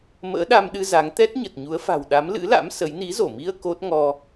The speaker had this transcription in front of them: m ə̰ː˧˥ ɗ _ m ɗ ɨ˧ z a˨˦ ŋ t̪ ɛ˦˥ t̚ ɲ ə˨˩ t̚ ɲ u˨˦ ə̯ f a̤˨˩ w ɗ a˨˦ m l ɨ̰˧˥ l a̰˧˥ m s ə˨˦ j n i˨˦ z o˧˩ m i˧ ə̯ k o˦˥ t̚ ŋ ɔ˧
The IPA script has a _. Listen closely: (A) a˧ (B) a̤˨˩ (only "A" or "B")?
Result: A